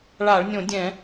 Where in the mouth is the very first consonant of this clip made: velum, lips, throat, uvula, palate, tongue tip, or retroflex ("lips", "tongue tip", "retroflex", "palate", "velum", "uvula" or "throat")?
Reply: retroflex